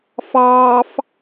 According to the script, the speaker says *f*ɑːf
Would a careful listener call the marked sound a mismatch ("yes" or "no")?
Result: no